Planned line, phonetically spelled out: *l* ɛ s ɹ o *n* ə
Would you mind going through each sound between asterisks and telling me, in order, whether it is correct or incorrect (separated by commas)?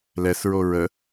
correct, incorrect